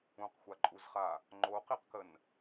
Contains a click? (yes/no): yes